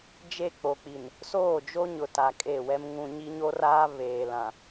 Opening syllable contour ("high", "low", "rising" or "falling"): falling